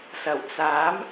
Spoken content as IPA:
sɐ˨˩wt͡saː˨˥m

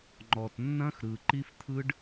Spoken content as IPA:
ŋ͡ǃɔ˨tnːɐ̃˦xɾɯ˨ ǃi˦ft̪ʰɯ˦ɖ

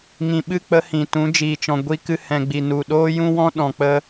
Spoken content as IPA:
ŋĩ˨ɓɨ˦˨ k͡pə˦hĩ˨ tũ˨˦d͡ʒiː˨t͡ʃɔ̃˨ ɡʷi˧kɨ˧ hɛ̃˨ɡ͡bi˨ nu˨ɗoː˦jũ˦wɔ̃˦ ɗɔ̃˨k͡pə˦

